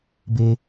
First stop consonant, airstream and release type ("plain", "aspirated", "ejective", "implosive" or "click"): plain